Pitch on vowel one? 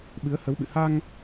rising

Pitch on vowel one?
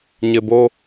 low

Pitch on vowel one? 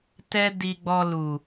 high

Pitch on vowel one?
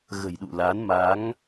low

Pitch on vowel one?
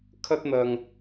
high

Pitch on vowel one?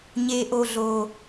low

